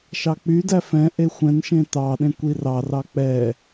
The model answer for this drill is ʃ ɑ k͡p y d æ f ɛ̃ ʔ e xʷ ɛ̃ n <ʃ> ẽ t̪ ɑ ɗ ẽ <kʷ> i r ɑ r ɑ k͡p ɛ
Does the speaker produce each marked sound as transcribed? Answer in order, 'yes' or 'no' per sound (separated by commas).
yes, yes